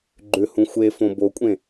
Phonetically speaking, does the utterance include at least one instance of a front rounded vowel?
yes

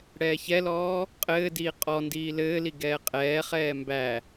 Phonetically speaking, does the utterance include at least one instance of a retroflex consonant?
yes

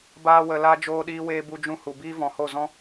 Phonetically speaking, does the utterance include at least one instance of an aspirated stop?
no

